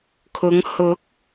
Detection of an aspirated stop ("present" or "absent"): present